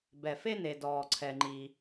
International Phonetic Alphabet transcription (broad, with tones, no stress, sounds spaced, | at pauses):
b ɛ˩ f e˥ n e˩ d ɔː˩ ǀʰ ɛ˩ ŋ͡ǃ i˩